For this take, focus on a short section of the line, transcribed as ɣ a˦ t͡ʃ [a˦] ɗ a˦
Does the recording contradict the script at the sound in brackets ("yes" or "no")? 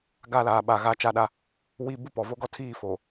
no